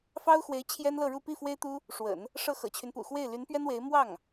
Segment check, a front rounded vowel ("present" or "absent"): present